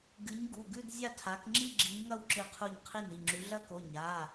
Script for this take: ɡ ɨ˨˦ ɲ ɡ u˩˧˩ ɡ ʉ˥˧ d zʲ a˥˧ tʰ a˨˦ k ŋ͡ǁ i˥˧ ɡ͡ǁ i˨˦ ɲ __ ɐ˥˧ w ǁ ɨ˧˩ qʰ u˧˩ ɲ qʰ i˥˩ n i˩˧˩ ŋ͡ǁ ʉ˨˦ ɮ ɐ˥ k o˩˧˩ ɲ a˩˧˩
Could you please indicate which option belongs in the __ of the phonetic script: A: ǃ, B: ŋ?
B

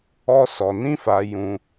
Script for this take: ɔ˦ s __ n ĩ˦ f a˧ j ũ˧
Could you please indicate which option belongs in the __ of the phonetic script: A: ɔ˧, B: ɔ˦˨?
A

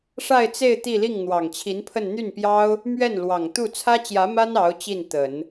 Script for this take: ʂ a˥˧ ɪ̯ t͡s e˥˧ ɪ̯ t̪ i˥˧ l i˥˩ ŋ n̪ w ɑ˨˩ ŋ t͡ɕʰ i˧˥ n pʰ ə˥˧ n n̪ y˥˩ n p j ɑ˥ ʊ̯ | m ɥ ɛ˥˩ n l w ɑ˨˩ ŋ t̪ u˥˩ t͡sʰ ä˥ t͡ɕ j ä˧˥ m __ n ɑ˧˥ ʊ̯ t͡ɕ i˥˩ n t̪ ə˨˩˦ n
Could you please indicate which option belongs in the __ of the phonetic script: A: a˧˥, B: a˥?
B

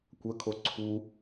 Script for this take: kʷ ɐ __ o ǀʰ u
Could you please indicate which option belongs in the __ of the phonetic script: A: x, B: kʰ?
B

